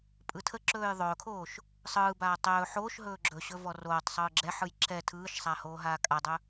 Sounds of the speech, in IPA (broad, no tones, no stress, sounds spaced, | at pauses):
pʼ ɯ tʰ ə ǁ ɵː j ðˤ ɵː kʰ oː ʃ | sˤ ɯː b aː tˤ ɵː ħ oː ʃ ɦ ɵː ɡ͡ǁ ɵ ɕ ɵ v ɔ r oː tˤ sˤ ɯː ɡ͡ǁ ɛ ħ ɯ j ǁ ɛ tʰ ɯː ʃ sˤ a h oː ɦ aː kʼ a dˤ ɵ